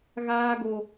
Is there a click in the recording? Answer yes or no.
no